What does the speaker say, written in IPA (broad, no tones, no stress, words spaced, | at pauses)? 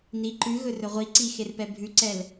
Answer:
ni ǃʉɣɵ rɵʁʷiǀi xerpɛbʱʉǀɛl